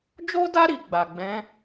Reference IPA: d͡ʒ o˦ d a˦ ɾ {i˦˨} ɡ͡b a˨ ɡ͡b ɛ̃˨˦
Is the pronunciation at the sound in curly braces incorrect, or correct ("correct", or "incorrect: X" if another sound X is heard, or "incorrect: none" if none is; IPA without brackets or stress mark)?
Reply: incorrect: i˧